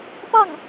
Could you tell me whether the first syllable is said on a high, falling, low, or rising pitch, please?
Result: falling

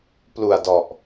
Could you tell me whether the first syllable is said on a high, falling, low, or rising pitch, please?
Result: low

